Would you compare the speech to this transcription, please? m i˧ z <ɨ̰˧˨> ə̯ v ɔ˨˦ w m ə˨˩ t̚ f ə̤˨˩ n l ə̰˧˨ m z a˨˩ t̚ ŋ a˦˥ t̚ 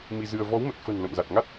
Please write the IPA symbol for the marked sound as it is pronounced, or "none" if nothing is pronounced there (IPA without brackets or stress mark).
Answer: ɨ˧